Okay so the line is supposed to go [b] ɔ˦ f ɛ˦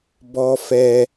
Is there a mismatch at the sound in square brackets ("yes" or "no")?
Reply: no